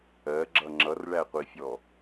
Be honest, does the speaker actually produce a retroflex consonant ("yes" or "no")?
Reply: yes